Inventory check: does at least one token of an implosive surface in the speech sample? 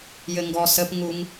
no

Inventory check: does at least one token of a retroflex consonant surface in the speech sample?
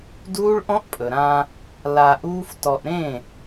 yes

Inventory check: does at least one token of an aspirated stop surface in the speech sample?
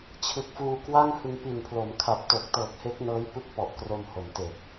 yes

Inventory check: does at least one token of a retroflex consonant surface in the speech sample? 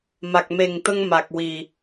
no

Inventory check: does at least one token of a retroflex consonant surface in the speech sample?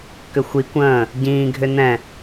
no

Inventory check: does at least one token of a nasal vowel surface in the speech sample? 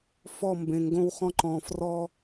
yes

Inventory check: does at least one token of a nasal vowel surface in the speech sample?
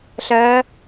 no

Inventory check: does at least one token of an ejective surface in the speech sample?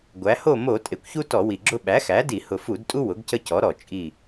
yes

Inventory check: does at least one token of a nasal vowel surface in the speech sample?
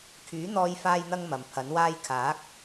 no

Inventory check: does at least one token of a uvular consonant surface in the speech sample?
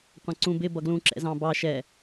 yes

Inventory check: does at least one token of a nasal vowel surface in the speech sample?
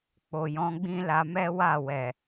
yes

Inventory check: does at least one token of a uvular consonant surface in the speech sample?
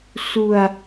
no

